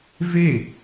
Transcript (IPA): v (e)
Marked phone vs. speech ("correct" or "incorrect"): correct